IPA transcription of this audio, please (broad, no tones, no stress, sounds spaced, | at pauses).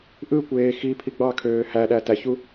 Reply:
ʔ ɯ kʷ eː x i pʰ i ɡ͡b ɑ kʰ øː h æ ɗ æ t æ ç u